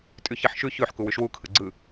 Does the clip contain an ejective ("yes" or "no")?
yes